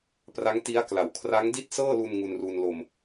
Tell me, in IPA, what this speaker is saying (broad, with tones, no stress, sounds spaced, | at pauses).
p r a˦˥ ŋ t i˦˥ a̯ k l a˩˦ w kʰ r a˦˥ ŋ d i˥˩ t̚ s ɤː˥˩ l u˧ n ŋ u˧ n r uː˧ n l o˧ m